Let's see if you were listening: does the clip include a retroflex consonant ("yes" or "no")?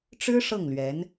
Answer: yes